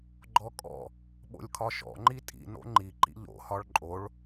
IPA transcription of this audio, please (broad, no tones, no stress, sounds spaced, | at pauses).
ɡ͡ǃ ɔ kʼ ɔ̰ | ɓ o̰ lʲ kʰ ɒ ʃ ɔ̰ ŋ͡ǃ i tʼ ḭ n o̰ ŋ͡ǃ i ǃ ḭ ʎ o̰ h ɒ ɭ ǃʼ o ɭ